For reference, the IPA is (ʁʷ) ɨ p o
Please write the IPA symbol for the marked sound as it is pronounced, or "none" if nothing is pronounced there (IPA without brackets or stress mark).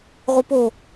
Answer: ʁʷ